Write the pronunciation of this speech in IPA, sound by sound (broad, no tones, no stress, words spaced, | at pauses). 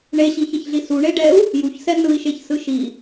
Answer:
ɳeɕiçɛçɮi suɳeɖɛu̯ | juçsɛ nɯi̯ʃeçsɯ ʃi